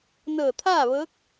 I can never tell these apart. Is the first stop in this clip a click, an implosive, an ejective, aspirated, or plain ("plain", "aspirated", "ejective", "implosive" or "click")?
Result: aspirated